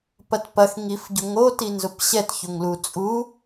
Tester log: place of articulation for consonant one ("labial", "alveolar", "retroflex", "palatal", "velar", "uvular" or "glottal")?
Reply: labial